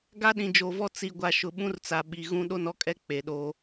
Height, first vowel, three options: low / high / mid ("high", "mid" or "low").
low